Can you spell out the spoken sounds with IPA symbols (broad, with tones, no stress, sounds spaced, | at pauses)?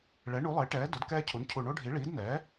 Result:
ɭ ɛ˩˥ ɳ u˩˥ lˠ e˩˥ ʈ ɛː˩˥ d o˩˥ d k ɛː˦ cʰ u˩˥ n cʰ u˨˩ ɳ o˦ ɖʱ i˩˥ ɭ iː˩˥ d n ɛː˩˥